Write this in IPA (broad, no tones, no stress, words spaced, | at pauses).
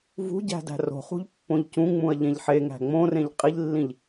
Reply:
vṳɟæ̤ dæ̤ro̤χṳʎ pːõʎcũŋ͡mũɐ̯ ʎẽʎħeŋæ̤ ŋ͡mõrẽʎ qʼiʎlːĩʎ